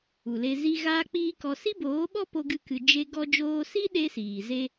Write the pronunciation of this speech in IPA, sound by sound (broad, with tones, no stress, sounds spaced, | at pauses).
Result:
u˨ l e˧ z i˦ ɣ aː˦ k͡p iː˦ k ɔ˧ s i˦ b oː˨˦ ɓ ɔ˦ p o˦ ɡ ɨ˦ k ɨ˧ d͡ʒ e˦ ɡ ɔ˧ d͡ʒ oː˧ s i˦ ɗ e˦ s iː˨ z e˧